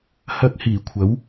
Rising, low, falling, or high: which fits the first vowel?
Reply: high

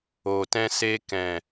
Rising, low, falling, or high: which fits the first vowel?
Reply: low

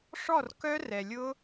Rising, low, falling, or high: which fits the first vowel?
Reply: falling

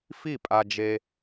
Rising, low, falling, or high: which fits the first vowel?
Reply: falling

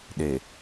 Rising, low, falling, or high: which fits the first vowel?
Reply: low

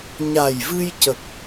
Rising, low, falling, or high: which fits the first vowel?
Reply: low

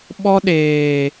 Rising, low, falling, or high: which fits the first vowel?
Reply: high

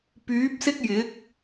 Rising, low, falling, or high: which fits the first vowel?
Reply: rising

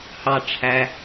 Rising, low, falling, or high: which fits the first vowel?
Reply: low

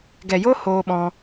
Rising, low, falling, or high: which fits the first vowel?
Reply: low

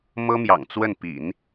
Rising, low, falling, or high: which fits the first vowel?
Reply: high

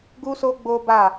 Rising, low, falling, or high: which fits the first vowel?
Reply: high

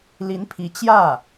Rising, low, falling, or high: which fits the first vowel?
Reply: rising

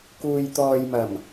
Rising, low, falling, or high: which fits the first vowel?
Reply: low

